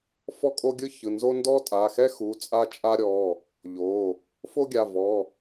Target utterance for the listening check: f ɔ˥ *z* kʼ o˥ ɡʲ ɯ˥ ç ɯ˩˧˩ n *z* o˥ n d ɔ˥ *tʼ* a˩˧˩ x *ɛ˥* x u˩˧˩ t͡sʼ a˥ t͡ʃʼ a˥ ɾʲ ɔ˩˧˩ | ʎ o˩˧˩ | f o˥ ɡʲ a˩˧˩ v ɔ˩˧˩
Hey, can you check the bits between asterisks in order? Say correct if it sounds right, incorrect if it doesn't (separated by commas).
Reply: incorrect, correct, correct, correct